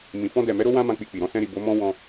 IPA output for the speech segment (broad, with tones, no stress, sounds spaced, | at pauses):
m ĩ˨ f ɔ̃˧ d ɛ˨ m ɛ˨˦ ɾ o˦ w ã˦ m ã˧ k͡p i˧ k͡p i˨ ɾ ɔ̃˧ s ɛ̃˧ ɾ i˨ b o˨˦ m ɔ̃˦ w ɔ̃˧